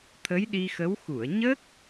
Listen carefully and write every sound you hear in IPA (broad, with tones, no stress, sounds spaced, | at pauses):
t̪ʰ ə˧˥ j ɗ i˧ x ə˧˥ w x u˨˩˨ ə̯ ɲ ə˦˥ k̚